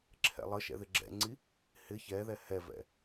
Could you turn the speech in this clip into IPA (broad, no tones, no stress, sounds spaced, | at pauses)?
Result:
ǁʰ ɛ̰ lˠ ə ʃ ɛ̰ ð ɪ ɡ͡ǁ ɛ̰ ŋ͡ǀ i | h ɪ ç ɛ ð ɛ h ɛ v ɛ̰